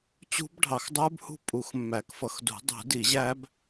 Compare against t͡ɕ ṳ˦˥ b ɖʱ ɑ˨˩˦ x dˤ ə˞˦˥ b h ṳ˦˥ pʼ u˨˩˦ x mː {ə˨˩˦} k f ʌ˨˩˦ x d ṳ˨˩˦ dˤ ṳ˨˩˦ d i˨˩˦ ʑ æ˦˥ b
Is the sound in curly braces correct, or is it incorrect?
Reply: incorrect: æ˨˩˦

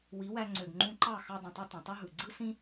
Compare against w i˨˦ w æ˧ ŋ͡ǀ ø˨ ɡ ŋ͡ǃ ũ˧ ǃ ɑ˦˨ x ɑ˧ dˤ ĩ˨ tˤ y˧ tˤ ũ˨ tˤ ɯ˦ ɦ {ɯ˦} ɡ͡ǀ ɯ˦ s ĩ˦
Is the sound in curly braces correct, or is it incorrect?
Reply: incorrect: ɯ˨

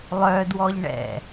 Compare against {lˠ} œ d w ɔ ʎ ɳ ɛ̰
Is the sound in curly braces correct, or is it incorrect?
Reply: correct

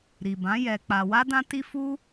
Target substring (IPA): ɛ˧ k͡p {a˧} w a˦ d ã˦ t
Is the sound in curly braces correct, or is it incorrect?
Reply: correct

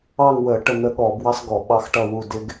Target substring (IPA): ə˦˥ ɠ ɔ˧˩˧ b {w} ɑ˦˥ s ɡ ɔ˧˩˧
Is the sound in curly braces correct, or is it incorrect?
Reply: correct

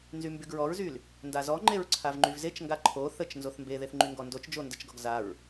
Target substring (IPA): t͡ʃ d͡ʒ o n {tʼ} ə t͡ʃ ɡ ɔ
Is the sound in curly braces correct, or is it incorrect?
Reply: incorrect: d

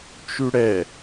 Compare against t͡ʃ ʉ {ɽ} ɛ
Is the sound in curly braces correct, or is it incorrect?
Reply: correct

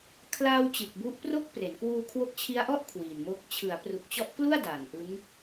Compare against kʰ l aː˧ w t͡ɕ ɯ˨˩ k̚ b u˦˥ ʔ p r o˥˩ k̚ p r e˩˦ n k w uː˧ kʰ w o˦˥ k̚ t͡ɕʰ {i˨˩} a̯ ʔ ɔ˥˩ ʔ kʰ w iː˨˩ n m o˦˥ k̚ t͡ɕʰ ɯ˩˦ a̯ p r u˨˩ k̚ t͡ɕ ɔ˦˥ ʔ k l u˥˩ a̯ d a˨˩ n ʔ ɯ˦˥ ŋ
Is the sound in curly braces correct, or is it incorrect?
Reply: incorrect: i˦˥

